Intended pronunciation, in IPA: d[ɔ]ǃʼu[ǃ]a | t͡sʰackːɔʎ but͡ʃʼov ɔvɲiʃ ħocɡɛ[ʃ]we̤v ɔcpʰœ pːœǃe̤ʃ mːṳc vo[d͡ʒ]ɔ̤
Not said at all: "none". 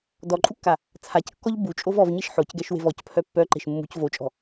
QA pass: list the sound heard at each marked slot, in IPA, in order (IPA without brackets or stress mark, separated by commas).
ɔ, kː, ʃ, t͡ʃʼ